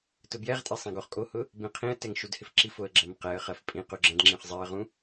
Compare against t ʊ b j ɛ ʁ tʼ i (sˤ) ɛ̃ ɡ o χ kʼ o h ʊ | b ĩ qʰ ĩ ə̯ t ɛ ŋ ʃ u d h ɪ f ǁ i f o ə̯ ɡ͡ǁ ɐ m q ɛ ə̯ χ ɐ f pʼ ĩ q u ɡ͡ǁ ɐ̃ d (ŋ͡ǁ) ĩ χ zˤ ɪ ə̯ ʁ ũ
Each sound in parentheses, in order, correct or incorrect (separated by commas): correct, correct